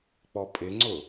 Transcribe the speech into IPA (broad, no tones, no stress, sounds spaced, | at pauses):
k͡p ɔ pʼ ɪ ŋ͡ǀ ʊ